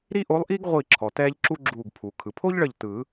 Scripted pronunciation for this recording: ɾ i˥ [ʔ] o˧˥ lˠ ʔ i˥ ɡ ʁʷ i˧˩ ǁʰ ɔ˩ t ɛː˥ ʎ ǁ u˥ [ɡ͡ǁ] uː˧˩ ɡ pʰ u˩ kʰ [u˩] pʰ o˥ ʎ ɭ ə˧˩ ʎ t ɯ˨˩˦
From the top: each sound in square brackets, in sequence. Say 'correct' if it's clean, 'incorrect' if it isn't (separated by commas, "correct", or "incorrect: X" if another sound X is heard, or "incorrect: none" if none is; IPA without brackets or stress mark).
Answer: correct, correct, incorrect: ɯ˩